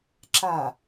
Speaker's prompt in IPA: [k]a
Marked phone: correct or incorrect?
incorrect